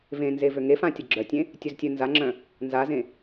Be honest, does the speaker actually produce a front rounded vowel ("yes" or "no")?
yes